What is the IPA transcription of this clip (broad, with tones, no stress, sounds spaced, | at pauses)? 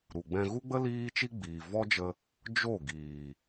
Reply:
ɾ u˨ ɡ͡b ɛ̃˧ ɣ u˦ ɡ͡b ə˦ l iː˦ t͡ʃ i˦ ɡ͡b iː˨ v ɔ˦ d͡ʒ ə˧ | d͡ʒ o˦˨ ɡ iː˨